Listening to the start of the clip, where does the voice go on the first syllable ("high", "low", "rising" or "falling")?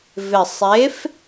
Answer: low